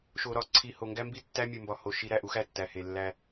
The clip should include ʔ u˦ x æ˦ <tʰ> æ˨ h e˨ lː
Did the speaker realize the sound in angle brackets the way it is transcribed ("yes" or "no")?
no